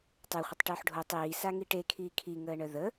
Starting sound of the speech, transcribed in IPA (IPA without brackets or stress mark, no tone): tˤ